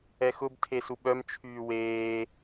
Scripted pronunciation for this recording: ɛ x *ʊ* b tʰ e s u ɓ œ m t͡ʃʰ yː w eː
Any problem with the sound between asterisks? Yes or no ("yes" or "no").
no